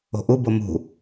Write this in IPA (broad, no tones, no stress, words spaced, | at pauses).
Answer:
o̤ʔubo mṳ